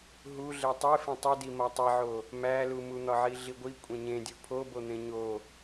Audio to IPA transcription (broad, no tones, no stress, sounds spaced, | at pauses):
ɦ u ɮ e tˤ e f ẽ tˤ u d i m ɒ tˤ i ʕ o | m æ l u m u n̪ ɒ ʕ i ɮ i ɡʷ i kʷʼ ẽ ɲ ẽ dʲ u pʰ o b o n̪ ẽ ɲ o